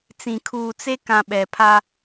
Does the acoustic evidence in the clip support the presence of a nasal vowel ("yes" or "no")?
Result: yes